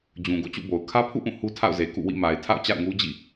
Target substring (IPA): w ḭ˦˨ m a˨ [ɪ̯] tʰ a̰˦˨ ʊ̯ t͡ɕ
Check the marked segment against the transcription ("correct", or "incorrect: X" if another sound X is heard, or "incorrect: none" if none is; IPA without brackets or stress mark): correct